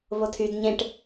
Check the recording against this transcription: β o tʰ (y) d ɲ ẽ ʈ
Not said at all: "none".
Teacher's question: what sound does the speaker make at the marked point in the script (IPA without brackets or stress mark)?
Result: y